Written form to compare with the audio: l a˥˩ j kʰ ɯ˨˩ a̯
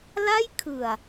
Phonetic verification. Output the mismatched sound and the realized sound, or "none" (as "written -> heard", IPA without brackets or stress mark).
none